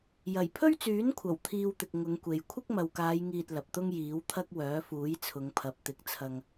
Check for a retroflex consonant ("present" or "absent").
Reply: absent